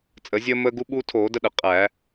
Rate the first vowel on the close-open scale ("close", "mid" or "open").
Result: mid